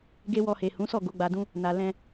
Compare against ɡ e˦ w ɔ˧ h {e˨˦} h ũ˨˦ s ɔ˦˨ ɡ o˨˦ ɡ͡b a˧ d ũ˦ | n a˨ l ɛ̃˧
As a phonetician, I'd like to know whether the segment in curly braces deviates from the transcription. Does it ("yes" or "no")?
yes